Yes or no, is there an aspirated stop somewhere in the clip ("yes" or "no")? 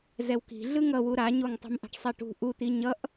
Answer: no